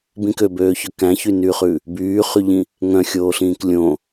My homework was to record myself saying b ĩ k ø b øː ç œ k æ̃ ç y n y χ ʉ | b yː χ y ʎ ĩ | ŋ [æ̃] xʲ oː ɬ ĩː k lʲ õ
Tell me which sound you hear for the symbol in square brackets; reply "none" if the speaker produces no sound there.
œ̃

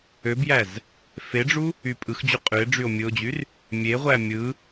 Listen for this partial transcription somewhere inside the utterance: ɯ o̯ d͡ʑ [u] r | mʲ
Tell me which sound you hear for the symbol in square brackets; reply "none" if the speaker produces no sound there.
y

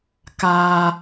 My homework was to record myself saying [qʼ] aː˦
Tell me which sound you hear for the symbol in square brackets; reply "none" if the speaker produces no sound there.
k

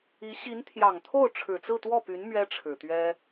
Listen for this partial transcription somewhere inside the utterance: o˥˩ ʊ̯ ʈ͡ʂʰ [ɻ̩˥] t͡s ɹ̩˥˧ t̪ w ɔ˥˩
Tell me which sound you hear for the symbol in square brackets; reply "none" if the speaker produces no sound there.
ɻ̩˨˩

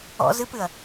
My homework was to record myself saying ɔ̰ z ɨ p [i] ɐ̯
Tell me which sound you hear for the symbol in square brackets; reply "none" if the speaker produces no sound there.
ɨ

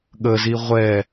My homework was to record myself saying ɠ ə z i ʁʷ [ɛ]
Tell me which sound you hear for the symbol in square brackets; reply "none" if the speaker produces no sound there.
ɛ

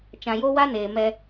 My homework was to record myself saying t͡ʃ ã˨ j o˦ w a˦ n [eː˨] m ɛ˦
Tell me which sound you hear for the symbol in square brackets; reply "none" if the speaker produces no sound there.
eː˨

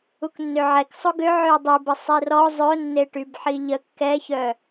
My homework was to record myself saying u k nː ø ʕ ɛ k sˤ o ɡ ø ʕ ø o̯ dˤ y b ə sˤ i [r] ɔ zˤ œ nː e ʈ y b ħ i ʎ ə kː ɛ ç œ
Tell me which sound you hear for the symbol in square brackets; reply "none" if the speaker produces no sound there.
r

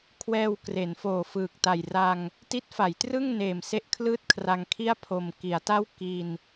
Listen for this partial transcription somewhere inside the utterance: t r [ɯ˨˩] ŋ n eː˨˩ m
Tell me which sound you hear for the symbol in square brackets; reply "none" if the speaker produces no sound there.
ɯ˥˩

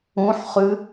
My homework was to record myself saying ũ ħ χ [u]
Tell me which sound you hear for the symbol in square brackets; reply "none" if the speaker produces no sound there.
ʉ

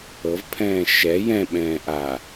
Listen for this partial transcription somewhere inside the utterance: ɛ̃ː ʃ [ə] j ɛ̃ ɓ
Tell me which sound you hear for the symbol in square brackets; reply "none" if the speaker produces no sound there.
ɛ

